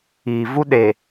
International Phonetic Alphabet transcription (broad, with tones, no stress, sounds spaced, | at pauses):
iː˨ v u˦ ɗ e˨